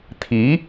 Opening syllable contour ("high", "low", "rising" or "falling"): rising